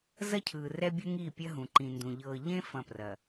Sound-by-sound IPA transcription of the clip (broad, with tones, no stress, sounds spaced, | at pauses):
z ɐ˦ cʰ ɯː˨ r ɛ˦ bʲ u˦ ŋ iː˦˨ pʲ ɐ˦ ɦ ũ˨ ǃ ĩ˨ n d ũ˨ ʎ ɤː˨ ʎ ẽ˦ f ɐ̃˦˨ p r ɐ˨